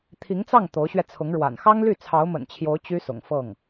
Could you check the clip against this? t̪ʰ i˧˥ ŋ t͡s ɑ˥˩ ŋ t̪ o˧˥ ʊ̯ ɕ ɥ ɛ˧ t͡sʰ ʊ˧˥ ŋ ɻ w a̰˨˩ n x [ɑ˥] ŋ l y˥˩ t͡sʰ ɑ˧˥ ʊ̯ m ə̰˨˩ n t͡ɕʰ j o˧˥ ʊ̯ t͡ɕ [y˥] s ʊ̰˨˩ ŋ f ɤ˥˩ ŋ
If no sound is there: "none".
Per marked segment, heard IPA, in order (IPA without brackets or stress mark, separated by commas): ɑ˥, y˥